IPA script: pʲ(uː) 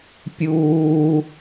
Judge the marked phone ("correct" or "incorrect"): correct